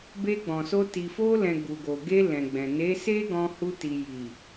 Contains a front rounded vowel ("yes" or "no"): no